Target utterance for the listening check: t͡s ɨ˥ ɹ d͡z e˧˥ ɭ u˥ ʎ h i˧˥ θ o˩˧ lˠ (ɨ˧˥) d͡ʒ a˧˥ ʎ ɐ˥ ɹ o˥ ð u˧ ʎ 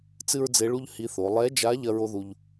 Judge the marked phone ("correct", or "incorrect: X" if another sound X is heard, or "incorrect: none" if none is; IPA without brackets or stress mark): incorrect: ɛ˧˥